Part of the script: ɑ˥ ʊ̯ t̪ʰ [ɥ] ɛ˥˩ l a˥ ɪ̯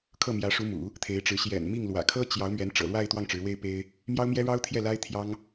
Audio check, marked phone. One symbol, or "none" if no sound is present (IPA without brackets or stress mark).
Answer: j